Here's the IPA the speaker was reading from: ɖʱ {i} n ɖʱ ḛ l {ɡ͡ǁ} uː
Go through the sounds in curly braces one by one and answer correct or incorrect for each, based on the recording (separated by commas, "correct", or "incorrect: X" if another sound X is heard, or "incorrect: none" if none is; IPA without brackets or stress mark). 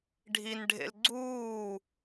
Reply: correct, incorrect: ɡ͡ǀ